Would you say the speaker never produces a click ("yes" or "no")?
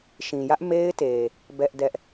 yes